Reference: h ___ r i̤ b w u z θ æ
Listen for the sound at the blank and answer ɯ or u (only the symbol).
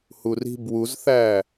u